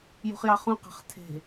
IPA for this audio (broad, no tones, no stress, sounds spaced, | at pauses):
j ṳ χ j ɑ χ ũ q ɑ̤ χ tʰ e̤